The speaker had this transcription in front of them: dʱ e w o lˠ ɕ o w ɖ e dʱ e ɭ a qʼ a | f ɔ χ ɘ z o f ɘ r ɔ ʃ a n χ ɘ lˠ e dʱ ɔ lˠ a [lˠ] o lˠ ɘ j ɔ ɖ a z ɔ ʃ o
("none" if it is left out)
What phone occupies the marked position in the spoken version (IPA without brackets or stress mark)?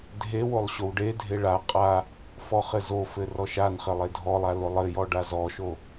l